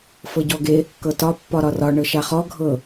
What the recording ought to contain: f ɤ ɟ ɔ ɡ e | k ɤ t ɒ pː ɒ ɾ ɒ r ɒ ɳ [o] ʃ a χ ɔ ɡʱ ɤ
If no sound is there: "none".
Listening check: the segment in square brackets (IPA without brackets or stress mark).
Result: ɤ